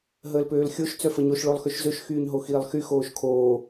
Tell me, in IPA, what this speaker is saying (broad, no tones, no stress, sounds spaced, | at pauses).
ɦ əː l p øː l xʲ o ʃ t͡s œ f ə ɲ o ʃ ɭ o lˠ x ø ʃ z ø ʃ x yː ɲ ɦ o x iː lˠ x y x oː ʃ kʰ oː